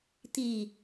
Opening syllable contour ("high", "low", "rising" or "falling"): low